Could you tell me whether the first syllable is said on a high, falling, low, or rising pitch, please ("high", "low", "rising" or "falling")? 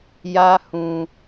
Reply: high